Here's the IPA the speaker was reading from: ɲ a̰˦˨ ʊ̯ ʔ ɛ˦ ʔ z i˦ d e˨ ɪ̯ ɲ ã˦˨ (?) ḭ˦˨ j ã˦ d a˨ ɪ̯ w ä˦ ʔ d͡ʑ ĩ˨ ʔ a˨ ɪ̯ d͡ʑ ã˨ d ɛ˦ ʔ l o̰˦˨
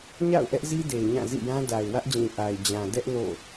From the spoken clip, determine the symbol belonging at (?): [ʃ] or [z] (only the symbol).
z